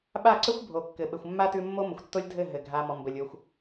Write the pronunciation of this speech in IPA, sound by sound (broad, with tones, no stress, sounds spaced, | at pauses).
ɓ a˦˨ ǀ ə˦ xʷ bʱ o˨ kː ɘ˨ ɓ ɘ˨ xʷ mː a˦ t ʉ˦ mː o˦ m ə˨ xʷ tː o˦ lʲ dʱ ɘ˦˨ ɦ ɘ˨ ɡʱ a˧ m ɔ˨ m b ə˨ lʲ o˧ xʷ